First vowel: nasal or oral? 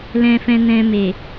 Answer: nasal